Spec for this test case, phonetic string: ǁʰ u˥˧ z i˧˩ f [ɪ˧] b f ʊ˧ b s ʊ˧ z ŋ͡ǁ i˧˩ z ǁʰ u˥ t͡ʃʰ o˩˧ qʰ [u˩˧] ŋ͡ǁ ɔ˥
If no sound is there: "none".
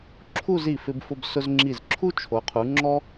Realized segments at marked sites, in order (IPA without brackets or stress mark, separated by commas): ɪ˧, u˩˧